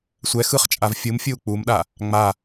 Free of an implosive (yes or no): no